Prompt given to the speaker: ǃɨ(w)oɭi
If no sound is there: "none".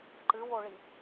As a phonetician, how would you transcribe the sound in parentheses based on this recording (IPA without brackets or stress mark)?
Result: w